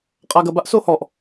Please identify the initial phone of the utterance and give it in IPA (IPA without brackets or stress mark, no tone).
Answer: qʼ